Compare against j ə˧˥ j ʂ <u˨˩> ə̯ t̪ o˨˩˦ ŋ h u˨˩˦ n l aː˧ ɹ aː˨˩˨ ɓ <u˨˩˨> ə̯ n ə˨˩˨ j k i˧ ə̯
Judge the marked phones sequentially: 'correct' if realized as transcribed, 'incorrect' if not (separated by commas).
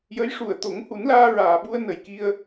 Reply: correct, incorrect